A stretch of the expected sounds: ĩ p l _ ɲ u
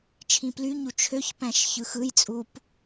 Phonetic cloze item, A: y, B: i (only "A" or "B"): A